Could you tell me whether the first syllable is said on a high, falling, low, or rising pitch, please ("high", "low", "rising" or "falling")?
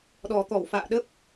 low